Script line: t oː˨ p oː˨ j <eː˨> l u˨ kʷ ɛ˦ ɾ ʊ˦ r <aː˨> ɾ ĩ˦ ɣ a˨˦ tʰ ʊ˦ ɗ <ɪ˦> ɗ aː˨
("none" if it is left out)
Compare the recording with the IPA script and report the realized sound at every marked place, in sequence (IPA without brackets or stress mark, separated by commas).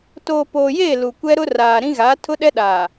eː˦˨, aː˨, ɛ˦